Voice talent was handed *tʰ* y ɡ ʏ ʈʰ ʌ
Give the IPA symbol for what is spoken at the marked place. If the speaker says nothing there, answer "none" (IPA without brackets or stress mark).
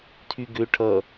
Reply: tʰ